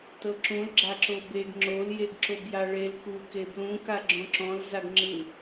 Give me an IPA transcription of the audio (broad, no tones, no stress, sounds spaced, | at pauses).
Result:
t ɤ ǁ ũ l ɡ͡ǁ a ǁ o b e ɡ ŋ͡ǁ o l j e ɡ ǁ o b j a ɭ e l k u k e b l ũ k a ɡ͡ǁ õ ǁ ɔ̃ l z a ɡ ŋ͡ǁ ɯ